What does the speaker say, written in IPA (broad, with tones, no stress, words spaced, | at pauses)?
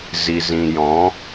zi˨zĩ˨jɔ̃˨˦